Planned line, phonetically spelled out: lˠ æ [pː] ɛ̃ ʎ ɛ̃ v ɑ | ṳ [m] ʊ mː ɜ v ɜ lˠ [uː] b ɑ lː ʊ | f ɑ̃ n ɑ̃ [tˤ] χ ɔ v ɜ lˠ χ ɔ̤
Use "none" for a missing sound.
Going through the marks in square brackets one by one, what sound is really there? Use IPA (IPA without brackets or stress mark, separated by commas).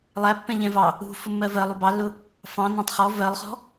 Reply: pː, f, u, tˤ